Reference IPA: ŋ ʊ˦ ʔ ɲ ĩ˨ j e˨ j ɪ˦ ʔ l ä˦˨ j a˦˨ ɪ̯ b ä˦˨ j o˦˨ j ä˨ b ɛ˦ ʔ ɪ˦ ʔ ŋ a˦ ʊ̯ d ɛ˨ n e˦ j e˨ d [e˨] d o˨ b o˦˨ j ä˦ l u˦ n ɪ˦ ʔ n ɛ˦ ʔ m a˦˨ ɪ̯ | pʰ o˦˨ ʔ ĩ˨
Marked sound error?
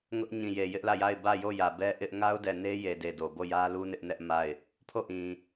no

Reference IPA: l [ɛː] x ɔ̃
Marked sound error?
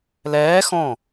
no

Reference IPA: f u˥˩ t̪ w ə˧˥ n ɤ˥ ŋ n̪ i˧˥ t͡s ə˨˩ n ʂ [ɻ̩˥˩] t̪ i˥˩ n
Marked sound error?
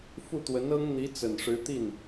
yes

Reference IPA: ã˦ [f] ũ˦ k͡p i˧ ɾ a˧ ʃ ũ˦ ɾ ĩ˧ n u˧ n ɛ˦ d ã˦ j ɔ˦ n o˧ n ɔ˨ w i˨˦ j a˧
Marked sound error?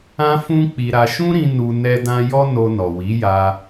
no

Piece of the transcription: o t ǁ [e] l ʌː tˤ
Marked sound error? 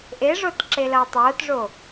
no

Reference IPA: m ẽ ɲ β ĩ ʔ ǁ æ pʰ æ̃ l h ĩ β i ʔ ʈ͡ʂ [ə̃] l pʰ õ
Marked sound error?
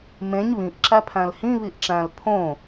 yes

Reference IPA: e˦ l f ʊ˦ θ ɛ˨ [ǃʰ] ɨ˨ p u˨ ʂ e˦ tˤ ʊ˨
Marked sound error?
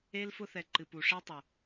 yes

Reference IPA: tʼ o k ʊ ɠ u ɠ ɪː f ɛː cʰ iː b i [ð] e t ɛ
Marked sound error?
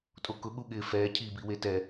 yes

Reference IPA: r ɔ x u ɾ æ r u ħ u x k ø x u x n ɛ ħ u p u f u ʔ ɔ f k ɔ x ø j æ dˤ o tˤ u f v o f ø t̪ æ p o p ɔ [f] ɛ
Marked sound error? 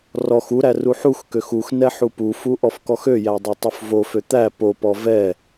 yes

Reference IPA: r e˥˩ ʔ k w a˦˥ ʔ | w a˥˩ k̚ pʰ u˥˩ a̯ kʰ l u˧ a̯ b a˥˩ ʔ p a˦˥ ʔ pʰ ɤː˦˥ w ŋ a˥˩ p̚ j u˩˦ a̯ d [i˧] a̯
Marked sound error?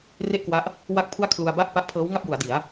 yes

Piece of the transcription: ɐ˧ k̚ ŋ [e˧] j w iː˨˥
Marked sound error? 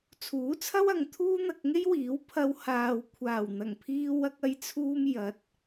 yes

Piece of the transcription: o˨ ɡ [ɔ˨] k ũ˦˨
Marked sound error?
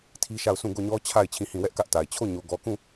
no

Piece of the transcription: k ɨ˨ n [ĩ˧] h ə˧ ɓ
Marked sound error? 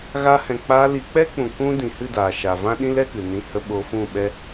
no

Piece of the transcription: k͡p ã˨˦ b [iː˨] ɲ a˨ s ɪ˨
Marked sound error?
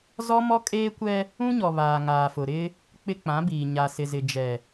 no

